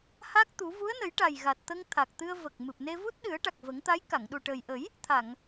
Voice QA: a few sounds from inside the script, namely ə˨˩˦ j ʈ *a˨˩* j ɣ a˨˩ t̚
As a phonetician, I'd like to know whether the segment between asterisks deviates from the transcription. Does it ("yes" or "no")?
no